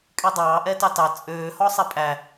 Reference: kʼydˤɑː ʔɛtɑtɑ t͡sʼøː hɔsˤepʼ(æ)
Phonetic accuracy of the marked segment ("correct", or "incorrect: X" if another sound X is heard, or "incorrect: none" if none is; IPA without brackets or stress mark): correct